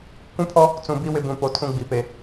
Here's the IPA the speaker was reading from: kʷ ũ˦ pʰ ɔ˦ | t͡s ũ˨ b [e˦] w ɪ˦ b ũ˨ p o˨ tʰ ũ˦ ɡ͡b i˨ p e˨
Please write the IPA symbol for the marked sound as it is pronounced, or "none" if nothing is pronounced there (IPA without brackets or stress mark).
i˦